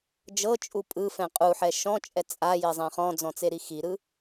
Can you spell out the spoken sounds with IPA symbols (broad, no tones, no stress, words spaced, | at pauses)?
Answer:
d͡ʒɤt͡ʃʼu pʼɯfɛ̃ qʼuħɛ ʃɔ̃t͡ʃʼɛ t͡sʼajezˤɛ̃ χɔ̃d͡zɔ̃t͡seɾi xiɾɯ